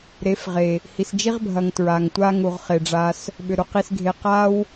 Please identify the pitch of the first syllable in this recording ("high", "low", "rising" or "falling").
rising